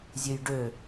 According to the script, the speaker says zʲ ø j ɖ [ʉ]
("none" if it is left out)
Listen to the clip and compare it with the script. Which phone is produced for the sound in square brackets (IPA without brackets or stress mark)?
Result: ø